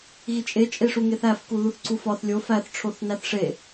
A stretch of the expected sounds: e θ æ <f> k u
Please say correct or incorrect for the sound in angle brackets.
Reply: correct